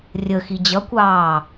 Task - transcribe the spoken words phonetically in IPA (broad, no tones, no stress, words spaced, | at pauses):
rʲəxi d͡ʑʌkʷɑː